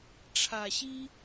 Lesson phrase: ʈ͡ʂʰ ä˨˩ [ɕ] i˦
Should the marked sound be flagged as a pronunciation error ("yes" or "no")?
no